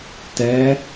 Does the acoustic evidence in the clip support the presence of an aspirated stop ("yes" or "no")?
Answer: no